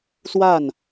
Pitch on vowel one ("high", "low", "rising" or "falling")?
falling